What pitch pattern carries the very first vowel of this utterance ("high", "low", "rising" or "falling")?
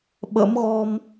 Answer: rising